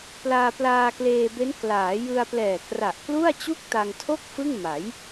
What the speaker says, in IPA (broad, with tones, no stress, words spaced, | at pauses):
plaː˧plaː˧kleː˧be˦˥n klaː˩˦jɯ˧a̯ plɛː˨˩kra˨˩ʔklu˥˩a̯ t͡ɕu˥˩k̚ ta˧ŋtʰo˥˩k̚ fɯ˥˩ŋma˩˦j